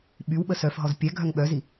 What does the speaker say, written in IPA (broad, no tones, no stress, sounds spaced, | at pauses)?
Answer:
ɓ y w ɓ ə s œ f ɦ ɔ z pʲ ɛ ɡʱ œ ŋ ɓ œ z i